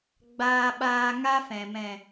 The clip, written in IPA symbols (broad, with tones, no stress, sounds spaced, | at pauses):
ɡ͡b aː˧ ɓ aː˧ ŋ a˦ f ɛ̃˨ m ɛ̃˨